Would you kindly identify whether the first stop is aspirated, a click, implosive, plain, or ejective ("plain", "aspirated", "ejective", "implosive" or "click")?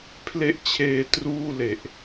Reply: aspirated